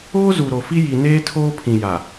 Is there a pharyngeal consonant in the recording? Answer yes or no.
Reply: no